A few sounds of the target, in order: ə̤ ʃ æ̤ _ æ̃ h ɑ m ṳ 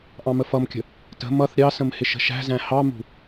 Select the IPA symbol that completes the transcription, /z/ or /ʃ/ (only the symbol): z